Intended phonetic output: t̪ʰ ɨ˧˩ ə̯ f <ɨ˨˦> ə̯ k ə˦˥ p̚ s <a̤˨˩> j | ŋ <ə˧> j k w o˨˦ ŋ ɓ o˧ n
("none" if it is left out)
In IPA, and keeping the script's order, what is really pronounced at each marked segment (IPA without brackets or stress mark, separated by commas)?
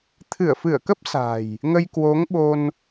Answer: ɨ˧˩, a̤˨˩, ə˧